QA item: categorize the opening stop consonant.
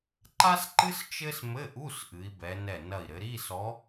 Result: click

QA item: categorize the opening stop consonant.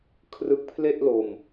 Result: aspirated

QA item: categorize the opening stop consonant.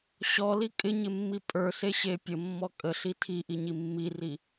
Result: ejective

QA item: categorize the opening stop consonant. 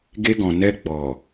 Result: plain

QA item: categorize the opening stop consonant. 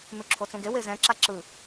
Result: click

